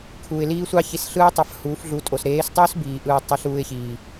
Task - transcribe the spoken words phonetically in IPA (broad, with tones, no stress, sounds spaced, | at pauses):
kʰ uː˨ ɪ̯ l iː˦ sʷ ɑ˦ ç i˧ s ɬ ɯː˦ tˤ ɑ˧ f h uː˨˦ f ɮ u˨˦ tʼ o˨ s ɾ eː˨˦ s tˤ uː˦ s b iː˨ ʔ ɯː˧ tˤ i˧ ɬ uː˧ ɪ̯ ç iː˨